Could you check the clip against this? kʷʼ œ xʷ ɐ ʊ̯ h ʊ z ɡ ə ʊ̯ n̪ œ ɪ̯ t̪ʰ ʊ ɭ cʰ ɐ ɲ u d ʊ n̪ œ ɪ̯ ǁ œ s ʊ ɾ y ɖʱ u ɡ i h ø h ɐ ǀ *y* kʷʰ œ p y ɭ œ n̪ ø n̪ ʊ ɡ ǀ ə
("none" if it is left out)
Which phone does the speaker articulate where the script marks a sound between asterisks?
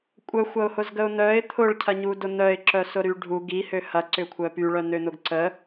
ʏ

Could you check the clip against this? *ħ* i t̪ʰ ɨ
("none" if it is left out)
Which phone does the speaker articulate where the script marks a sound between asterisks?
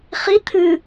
χ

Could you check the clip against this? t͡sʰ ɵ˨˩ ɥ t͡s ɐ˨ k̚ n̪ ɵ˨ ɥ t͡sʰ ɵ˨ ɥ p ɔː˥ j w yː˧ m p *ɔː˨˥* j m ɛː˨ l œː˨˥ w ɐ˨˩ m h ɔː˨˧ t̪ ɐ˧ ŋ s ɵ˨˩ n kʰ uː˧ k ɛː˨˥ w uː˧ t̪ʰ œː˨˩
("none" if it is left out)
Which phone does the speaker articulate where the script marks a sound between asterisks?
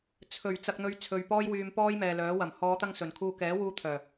ɔː˥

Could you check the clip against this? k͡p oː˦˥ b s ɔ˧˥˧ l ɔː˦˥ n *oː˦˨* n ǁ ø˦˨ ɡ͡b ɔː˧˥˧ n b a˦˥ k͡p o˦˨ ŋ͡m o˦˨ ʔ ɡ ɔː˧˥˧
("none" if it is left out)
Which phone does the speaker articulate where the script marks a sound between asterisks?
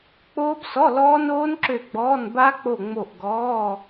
oː˦˥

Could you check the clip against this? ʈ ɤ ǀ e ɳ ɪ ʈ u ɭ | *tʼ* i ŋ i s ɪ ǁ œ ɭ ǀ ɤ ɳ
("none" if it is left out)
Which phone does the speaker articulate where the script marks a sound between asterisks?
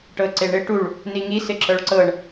n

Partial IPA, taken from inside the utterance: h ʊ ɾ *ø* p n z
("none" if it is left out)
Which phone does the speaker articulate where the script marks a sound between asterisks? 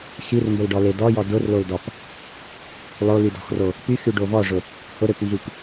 ø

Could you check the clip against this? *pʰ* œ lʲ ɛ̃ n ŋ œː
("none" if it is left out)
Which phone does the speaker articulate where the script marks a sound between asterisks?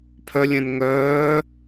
pʰ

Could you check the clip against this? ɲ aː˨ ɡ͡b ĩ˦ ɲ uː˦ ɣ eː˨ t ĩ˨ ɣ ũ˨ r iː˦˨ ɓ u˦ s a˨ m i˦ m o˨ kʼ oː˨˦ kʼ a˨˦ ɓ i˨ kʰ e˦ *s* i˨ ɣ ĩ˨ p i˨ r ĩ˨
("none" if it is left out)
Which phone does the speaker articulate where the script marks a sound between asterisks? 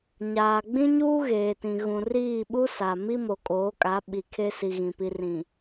s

